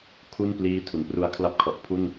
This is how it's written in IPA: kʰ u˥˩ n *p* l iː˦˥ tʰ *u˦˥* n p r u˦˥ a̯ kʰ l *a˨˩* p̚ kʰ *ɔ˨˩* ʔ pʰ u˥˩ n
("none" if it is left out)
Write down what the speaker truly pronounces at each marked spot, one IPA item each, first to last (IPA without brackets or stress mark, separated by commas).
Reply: p, u˩˦, a˥˩, ɔ˨˩